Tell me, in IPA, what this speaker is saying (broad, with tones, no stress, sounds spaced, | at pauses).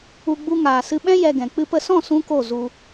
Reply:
u˧ ɡ͡b u˧ ŋ aː˨ s ɨ˧ ɓ ɛ̃˦ j ɛ˧ ɡ ɛ̃˨ k͡p ɨ˧ p ə˧ s ɔ̃˦˨ s ũ˦ k o˦˨ z u˧